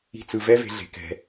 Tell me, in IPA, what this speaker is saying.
i̤˦ t͡s ɯ˧ v ɛ˦ v e̤˧ ɮ e̤˨ k ɛ̤˨

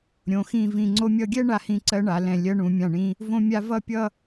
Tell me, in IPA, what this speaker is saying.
ɾʲ õ˩˧ x ĩ˧˩ v ĩ˧˩ ŋ͡ǀ o˧ mʲ ʌ˧ ɡʲ ɛ˥ ɳ a˧ h ĩ˧ ǀ ɜ˧ ɳ a˩˧ l ɛ̃˧˩ lʲ ɜ˧ ɳ ũ˩˧ mʲ ã˧˩ ɳ ĩ˧ | v õ˧ mʲ a˧ v ʌ˥˧ pʲ ʌ˥˧

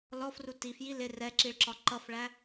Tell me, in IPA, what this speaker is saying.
l ɔ f r u t i f j i l ɪ r ɛ ǁ i ɭ ǁ ɒ ǃ ʌ f ɭ æ

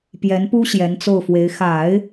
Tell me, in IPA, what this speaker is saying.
p j ɛ˧˥ n p u˥ ɕ j ɛ˧˥ n t͡s o˥˩ ʊ̯ f w e˧˥ ɪ̯ x a˨˩˦ ɪ̯

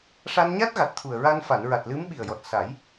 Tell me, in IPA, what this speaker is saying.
ʂ a˧ n ɲ a˦˥ t̚ ɣ a˨˩ t̚ t̪ʰ u˨˩ ə̯ ɹ a˧ n f a˨˩˨ n ɹ a˨˩ t̚ l ɨ˧˥ m ɓ i˨˩ ə̯ j ɔ˨˩ t̚ s a˨˩˦ j

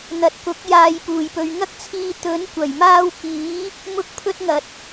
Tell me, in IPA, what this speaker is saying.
n̪ ɐ˨ t̚ k ʊ˨˥ k̚ j aː˧ j p uː˨˩ j p ɵ˧ ɥ ŋ ɐ˥ k̚ t͡sʰ iː˧ t̪ ɵ˨˥ n kʷ ɐ˨˩ j m aː˥ w k iː˨˥ | m ʊ˥ k̚ pʰ ɵ˥ t̚ ŋ ɐ˨ t̚

